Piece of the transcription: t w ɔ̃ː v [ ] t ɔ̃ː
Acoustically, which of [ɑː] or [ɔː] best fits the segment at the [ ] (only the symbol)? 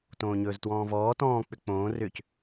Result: ɔː